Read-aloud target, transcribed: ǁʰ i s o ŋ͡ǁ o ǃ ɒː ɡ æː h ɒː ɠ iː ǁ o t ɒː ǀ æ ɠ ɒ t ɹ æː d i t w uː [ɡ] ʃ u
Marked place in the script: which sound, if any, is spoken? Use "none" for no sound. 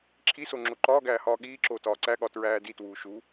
none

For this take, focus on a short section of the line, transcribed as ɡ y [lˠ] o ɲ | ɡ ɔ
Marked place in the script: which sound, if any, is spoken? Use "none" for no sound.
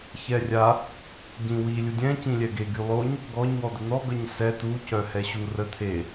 lˠ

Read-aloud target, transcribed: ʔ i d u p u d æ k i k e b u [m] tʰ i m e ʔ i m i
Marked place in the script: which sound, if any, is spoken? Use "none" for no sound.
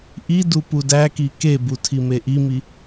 none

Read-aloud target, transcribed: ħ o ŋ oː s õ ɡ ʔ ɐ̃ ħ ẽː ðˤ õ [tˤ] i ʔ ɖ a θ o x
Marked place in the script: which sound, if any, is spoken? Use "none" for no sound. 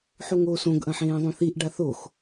θ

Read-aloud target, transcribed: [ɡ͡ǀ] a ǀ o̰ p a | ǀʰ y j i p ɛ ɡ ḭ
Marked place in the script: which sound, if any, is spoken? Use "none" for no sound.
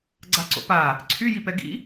ɡ͡ǀ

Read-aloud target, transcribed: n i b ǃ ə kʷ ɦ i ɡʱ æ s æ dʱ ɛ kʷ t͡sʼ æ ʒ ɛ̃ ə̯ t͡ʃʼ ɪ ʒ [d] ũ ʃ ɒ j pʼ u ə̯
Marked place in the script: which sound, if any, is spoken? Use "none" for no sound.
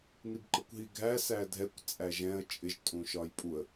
tʼ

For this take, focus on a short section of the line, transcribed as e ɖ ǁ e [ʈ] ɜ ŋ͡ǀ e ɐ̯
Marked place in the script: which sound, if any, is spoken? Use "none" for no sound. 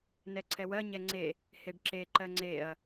ǃ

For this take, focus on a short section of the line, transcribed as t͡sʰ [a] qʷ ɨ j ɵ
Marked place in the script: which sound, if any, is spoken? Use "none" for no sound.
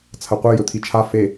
ɐ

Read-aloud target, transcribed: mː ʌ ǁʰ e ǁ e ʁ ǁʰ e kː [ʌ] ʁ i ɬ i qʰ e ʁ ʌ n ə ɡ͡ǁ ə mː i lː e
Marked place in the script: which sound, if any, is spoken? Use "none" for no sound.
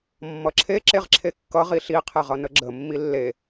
ʌ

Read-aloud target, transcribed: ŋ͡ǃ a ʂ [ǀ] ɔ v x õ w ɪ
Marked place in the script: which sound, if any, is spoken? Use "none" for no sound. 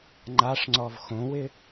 ŋ͡ǀ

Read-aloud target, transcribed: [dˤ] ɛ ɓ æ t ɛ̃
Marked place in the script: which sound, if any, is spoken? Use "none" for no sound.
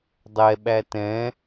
dˤ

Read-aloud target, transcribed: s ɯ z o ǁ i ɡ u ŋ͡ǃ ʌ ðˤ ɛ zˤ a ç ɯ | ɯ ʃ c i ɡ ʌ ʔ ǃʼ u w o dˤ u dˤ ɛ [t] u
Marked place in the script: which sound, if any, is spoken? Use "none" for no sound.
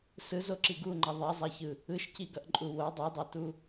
t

